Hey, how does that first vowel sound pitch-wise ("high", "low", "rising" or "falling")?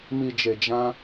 low